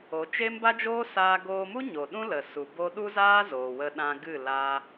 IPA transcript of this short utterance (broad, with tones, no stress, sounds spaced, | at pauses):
o˨˦ t͡ʃ e˦ m b a˦ d͡ʒ oː˦ s aː˧ ɡ oː˧ m u˦ ɲ o˨ ɗ ũ˦ l ə˨ s u˨ b o˦ ɗ u˦ z aː˦ z oː˨ w ə˧ ɗ ã˧ ɡ ɨ˦˨ l a˧